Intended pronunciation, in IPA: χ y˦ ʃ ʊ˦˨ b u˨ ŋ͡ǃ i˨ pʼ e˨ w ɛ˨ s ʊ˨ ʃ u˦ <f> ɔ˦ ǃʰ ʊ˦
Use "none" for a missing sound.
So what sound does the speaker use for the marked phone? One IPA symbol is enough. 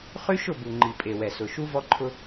v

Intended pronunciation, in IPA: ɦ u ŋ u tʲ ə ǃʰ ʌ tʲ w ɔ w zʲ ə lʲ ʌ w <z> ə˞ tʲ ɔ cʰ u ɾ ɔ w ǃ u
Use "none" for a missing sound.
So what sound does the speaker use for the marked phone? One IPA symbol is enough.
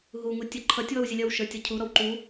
ʃ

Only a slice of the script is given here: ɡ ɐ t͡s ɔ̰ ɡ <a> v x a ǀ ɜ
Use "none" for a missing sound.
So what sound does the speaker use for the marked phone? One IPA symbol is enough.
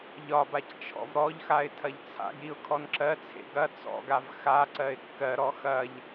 a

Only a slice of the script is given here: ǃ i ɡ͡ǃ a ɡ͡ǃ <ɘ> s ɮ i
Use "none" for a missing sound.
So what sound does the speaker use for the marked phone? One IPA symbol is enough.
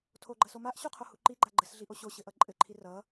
ɘ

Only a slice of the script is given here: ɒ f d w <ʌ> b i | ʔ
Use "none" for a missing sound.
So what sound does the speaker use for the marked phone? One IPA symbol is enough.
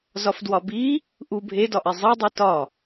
ɒ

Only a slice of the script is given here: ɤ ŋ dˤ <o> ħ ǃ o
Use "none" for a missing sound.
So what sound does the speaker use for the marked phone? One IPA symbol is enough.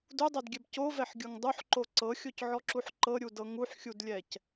u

